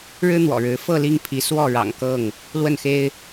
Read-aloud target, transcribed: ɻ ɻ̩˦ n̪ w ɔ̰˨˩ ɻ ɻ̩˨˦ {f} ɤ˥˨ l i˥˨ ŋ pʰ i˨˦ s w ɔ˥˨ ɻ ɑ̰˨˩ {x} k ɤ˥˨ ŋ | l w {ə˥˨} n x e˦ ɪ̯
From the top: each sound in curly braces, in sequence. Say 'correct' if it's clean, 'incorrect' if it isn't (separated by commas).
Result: correct, incorrect, correct